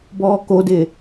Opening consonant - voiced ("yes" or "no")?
yes